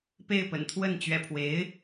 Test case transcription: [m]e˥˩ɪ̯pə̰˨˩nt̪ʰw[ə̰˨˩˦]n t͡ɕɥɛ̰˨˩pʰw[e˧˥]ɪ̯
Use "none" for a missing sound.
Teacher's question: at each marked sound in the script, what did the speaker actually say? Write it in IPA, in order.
p, ə˥˩, e˧˥

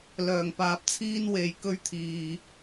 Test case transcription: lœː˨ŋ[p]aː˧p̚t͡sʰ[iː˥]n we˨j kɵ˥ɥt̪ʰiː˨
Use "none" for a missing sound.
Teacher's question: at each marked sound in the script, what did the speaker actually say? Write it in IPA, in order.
p, iː˥

